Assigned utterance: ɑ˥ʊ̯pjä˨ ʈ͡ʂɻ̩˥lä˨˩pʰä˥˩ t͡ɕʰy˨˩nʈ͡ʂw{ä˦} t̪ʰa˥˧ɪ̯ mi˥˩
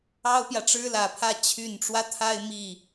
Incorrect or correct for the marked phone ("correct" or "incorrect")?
correct